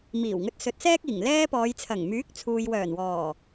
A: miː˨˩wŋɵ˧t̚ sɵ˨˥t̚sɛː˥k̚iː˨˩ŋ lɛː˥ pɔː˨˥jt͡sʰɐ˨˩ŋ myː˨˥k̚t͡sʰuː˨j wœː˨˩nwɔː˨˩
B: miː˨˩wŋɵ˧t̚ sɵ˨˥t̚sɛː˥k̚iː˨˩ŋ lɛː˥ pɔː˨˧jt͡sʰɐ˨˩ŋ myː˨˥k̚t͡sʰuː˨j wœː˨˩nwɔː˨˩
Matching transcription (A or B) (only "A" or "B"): B